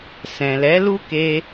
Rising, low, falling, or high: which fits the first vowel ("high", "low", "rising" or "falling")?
low